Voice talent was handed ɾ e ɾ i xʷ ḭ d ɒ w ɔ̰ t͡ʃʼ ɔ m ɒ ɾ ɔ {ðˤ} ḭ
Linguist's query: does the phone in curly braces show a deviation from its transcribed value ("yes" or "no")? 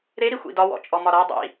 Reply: yes